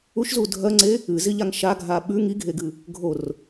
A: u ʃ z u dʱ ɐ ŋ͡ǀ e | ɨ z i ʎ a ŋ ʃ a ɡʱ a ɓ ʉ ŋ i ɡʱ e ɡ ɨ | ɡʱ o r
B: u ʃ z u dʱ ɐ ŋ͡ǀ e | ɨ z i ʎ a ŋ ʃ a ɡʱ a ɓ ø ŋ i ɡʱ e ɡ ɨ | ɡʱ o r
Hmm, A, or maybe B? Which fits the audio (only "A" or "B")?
A